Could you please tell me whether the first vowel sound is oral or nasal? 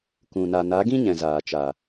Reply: nasal